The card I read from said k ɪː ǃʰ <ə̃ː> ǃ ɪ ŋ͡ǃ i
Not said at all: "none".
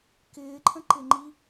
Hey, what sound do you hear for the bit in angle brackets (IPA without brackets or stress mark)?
ə̃